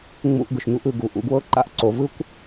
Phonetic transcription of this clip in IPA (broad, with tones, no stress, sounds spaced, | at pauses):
ŋ͡m ṵ˧ ʔ ɡ ɯ˨ ʃ ɲ u˦ ʔ ɯ˦˨ ɡ u˨˦ ʔ ṵ˧ ɡ w ɤ˦ ǃ a̰˦ ʔ ǀ o˧ v ɯ˦ kʷ